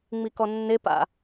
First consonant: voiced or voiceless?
voiced